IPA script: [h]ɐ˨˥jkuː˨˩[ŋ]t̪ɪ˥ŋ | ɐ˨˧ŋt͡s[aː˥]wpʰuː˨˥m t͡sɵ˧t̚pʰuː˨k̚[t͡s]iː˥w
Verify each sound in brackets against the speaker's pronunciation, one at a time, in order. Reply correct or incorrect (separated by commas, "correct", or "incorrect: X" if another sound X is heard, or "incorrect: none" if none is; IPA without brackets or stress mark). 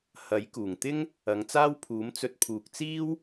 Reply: correct, correct, correct, correct